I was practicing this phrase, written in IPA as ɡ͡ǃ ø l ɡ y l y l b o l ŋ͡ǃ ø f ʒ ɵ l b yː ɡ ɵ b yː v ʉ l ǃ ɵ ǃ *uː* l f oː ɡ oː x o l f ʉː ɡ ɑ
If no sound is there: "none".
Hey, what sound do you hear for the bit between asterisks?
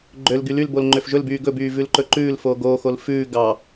ʉː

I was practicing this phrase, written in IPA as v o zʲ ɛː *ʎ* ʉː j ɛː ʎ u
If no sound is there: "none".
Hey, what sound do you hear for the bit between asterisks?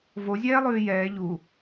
lˠ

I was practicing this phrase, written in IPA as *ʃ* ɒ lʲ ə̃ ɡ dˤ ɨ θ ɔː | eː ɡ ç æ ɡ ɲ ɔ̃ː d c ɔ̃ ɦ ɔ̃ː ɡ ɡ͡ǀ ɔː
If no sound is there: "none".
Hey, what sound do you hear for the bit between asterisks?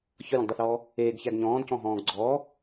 ç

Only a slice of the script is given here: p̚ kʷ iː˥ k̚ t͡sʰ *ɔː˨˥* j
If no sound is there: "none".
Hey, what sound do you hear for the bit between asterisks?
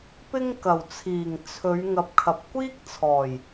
ɔː˨˩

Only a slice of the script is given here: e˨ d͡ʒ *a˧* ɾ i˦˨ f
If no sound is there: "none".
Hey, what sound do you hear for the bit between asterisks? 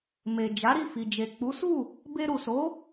a˨˦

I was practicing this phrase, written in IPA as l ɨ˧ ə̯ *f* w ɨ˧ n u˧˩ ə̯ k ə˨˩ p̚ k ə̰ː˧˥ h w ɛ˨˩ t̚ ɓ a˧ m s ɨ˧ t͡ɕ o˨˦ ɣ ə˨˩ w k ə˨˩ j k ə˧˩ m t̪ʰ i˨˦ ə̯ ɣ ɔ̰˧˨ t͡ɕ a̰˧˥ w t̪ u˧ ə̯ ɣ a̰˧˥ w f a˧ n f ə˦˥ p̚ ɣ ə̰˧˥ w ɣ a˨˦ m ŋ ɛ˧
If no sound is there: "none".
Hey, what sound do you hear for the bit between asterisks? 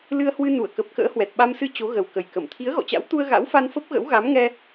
h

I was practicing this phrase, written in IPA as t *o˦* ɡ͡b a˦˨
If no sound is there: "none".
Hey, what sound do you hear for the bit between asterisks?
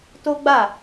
o˦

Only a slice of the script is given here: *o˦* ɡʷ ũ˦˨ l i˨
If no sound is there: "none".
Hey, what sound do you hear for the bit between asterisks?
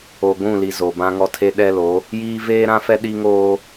o˨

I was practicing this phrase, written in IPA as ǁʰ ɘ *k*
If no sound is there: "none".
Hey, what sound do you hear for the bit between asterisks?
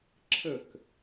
k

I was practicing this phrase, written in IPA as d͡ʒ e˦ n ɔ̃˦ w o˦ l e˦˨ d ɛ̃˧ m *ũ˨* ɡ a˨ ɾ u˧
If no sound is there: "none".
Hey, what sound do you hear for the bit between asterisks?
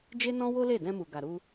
u˨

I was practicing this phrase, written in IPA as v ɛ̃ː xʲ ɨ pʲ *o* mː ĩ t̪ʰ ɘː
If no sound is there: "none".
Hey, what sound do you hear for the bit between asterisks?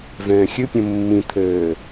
õ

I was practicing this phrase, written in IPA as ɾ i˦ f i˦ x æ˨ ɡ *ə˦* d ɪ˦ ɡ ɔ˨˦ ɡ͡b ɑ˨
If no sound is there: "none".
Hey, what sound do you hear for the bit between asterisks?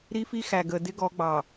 ə˨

